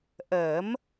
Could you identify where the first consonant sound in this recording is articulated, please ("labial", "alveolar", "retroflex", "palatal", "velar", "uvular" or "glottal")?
glottal